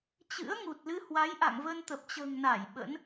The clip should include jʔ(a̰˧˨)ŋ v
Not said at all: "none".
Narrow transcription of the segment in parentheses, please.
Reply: a̰˧˨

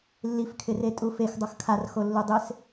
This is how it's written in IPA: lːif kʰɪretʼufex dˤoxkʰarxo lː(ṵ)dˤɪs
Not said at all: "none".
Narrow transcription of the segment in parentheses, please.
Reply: u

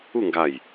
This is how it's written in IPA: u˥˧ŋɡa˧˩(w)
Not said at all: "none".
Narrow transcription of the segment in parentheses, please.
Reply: j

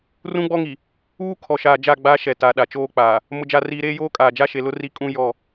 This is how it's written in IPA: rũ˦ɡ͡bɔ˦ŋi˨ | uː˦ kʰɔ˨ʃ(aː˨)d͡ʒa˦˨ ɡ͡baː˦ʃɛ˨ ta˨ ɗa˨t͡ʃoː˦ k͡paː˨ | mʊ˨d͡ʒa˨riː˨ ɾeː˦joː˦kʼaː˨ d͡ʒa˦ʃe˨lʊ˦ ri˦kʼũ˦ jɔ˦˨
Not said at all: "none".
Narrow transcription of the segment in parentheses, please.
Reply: aː˨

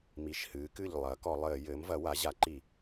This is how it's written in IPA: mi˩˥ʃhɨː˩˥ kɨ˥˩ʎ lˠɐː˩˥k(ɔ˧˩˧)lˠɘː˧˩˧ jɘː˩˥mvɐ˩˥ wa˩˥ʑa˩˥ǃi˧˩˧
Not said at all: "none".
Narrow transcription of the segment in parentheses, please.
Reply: ɔ˧˩˧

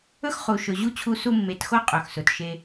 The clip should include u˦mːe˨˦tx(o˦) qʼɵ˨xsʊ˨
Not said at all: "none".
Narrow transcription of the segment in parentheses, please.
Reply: o˦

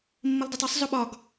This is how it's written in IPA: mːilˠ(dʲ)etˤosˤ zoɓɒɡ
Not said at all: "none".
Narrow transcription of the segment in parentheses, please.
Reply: d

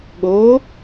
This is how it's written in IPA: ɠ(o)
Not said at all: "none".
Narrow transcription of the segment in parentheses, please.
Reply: o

